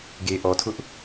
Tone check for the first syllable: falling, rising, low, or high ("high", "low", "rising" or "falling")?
low